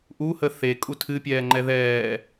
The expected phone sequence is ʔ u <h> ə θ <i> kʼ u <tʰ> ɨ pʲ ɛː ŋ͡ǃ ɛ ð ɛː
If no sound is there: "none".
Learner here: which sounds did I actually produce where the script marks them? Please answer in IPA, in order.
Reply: h, e, tʰ

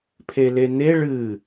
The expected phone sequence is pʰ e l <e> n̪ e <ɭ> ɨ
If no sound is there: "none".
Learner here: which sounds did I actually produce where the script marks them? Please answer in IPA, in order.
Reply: e, ɭ

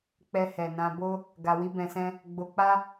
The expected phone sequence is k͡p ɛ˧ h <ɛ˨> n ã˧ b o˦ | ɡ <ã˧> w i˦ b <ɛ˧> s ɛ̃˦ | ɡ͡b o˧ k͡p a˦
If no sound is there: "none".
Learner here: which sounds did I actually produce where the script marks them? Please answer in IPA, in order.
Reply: ɛ˨, a˧, ɛ̃˧

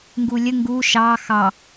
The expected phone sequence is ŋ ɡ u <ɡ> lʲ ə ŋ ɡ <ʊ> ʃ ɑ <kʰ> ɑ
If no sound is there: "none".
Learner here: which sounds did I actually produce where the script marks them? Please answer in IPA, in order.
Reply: none, u, x

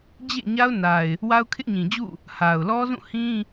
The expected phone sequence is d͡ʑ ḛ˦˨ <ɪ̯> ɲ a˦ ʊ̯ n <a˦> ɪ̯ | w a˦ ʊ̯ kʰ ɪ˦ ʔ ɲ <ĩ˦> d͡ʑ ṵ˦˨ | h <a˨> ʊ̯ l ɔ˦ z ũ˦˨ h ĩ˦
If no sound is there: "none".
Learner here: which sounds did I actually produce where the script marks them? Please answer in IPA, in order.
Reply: none, a˨, ĩ˨, a˨

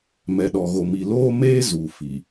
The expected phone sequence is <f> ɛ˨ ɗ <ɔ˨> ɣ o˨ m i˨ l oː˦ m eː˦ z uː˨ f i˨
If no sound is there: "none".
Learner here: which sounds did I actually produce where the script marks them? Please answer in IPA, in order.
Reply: m, ɔ˨

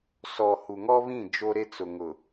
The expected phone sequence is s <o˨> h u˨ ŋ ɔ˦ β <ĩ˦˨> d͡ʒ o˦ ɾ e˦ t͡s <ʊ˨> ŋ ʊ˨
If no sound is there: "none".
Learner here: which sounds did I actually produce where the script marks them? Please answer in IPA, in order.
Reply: ɔ˨, ĩ˦˨, ʊ˨

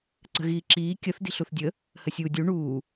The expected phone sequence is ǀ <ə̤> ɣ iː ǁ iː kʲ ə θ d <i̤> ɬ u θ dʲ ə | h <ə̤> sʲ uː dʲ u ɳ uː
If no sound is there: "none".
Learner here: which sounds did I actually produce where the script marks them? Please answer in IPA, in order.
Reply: ə̤, i̤, ə

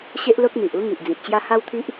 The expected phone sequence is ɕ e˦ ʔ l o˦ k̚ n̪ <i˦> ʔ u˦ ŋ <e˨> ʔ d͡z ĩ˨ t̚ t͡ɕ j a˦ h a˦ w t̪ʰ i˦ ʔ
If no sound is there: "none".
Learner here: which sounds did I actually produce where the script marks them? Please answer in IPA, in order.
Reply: i˨, i˨

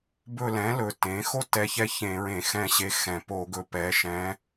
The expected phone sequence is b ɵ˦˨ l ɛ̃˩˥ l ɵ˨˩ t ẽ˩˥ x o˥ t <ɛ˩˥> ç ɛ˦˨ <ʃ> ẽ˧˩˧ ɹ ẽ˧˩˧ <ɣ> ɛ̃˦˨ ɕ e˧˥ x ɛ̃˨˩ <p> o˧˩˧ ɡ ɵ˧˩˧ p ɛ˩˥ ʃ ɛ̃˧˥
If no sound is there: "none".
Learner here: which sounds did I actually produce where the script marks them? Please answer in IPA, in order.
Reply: ɛ˧˥, ç, x, p

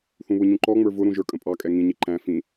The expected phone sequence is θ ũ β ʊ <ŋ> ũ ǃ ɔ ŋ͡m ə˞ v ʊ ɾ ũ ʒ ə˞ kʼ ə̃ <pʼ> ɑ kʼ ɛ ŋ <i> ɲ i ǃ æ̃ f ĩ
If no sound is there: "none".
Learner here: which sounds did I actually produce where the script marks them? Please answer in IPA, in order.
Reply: ɲ, pʼ, ĩ

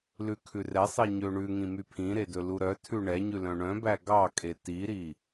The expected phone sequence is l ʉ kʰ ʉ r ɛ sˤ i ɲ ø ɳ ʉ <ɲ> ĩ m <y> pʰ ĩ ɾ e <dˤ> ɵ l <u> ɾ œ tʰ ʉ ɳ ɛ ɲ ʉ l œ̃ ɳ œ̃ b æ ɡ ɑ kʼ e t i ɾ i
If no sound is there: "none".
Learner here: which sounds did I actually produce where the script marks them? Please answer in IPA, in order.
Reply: ŋ, y, d, u

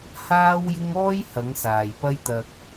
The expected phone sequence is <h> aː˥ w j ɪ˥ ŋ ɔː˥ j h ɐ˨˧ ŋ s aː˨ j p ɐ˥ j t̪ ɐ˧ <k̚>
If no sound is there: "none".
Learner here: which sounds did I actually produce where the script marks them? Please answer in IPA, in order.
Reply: h, k̚

